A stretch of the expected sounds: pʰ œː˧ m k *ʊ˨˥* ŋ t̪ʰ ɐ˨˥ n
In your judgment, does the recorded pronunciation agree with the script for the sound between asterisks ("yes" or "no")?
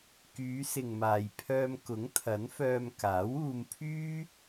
yes